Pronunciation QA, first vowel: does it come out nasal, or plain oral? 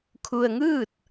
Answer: oral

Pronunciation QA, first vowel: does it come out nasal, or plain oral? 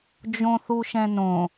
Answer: nasal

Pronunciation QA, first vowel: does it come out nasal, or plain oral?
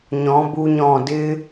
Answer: nasal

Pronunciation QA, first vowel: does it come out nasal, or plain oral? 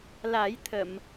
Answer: oral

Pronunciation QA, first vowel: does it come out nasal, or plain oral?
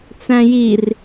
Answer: nasal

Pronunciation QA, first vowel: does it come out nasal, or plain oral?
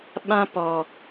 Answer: nasal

